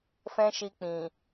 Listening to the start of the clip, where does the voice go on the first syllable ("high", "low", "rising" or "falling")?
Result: high